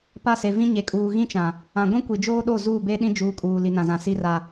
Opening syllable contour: falling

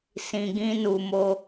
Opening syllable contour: low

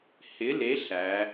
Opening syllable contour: rising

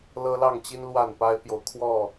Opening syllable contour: high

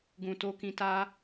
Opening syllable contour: low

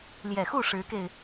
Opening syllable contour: low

